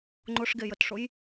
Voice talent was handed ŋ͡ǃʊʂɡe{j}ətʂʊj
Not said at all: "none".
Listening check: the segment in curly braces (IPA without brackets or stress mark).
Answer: j